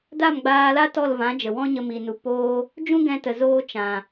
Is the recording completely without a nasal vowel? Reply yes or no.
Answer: no